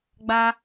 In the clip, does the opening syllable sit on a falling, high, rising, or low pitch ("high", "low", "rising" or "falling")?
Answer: high